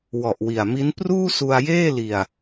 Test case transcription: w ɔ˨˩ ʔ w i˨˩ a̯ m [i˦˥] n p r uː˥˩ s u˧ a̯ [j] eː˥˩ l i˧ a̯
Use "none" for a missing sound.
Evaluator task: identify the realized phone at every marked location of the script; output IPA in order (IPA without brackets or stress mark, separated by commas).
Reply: i˦˥, j